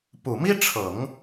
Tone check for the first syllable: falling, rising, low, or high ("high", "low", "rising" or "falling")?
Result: low